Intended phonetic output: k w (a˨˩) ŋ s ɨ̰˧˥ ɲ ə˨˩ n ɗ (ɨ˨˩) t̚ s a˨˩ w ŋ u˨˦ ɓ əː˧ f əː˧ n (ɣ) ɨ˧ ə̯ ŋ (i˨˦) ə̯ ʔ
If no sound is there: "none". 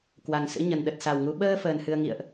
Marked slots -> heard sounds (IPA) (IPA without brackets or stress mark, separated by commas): a˨˩, ə˨˩, h, ḭ˧˨